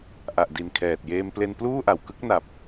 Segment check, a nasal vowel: absent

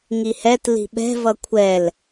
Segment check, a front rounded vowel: absent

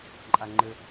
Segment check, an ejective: present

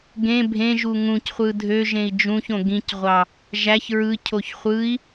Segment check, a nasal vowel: present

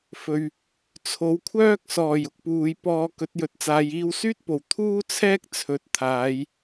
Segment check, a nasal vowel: absent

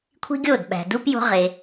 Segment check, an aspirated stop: present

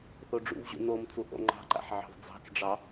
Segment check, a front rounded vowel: absent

